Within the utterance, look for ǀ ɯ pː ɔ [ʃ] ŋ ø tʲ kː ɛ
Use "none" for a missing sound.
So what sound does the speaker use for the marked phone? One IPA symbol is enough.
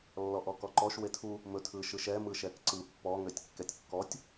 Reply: none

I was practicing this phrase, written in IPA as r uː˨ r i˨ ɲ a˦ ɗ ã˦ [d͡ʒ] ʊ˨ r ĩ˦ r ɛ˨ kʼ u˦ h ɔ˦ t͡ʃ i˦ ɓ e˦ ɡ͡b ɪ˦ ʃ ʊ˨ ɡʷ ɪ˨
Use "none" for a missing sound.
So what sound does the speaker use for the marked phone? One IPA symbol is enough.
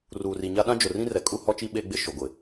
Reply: d͡ʒ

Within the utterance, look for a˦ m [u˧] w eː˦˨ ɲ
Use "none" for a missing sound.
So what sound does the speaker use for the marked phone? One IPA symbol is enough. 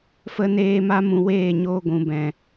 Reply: ũ˧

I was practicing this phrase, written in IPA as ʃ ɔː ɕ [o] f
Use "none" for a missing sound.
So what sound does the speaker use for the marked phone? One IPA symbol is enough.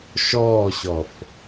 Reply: ɔ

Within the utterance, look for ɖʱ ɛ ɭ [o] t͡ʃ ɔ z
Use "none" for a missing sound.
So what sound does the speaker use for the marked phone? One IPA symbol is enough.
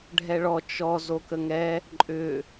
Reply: ɔ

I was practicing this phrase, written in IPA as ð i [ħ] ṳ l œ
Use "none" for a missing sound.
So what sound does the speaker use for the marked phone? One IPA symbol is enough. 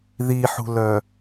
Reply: ħ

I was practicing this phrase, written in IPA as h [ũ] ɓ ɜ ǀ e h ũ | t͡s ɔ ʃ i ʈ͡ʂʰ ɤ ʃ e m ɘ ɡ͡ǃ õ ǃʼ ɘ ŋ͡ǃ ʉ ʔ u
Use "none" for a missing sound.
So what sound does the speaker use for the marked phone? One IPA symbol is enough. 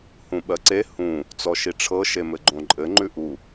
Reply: ũ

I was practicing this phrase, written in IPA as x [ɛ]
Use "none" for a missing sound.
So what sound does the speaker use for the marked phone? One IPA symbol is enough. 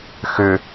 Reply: ʏ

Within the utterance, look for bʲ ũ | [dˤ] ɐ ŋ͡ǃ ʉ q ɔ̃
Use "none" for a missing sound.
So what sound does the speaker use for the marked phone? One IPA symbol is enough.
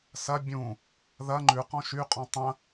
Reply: ð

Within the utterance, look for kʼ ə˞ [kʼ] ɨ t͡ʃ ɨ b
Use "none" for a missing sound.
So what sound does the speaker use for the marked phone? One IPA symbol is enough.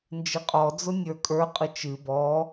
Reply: qʼ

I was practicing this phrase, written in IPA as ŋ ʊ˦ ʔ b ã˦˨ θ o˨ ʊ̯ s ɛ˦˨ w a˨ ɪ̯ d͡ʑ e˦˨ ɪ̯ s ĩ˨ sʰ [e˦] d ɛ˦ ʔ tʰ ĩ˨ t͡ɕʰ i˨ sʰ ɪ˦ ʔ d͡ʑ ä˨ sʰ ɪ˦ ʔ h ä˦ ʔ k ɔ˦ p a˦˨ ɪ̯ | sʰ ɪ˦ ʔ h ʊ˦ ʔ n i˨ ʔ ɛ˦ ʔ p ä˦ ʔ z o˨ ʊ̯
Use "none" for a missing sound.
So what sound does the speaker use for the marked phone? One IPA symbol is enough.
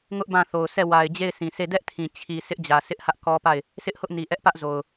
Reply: e˦˨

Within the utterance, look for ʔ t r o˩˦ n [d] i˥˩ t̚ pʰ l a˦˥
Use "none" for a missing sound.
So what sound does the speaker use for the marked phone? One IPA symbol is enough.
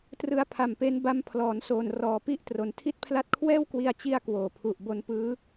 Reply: tʰ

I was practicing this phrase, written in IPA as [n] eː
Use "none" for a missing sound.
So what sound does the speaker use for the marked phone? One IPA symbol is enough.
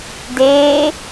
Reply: d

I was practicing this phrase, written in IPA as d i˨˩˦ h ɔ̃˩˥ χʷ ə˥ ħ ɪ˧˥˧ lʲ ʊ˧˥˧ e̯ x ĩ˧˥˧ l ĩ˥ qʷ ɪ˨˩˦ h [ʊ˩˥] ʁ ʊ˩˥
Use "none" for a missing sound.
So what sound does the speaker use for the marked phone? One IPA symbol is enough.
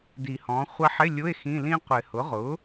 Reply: ʊ˩˥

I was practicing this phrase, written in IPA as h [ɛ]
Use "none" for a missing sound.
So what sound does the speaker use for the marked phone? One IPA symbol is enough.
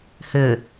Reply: ʏ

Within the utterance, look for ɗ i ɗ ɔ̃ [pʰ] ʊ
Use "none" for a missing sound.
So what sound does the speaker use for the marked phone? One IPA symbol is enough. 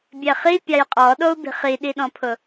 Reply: pʰ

